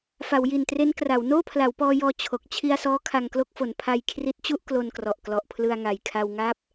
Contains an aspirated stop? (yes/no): yes